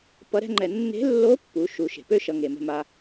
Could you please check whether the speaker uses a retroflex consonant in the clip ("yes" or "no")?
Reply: no